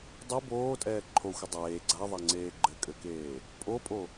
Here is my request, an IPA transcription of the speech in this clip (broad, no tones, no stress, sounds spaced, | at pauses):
dˤ i b oː tʼ ɛː ǃʰ o xʷ ɘ dˤ eː ɡ͡ǀ a ðˤ a ŋ͡ǀ eː ɡ͡ǃ ɘ kʼ ɘ k eː | pʼ o pʼ o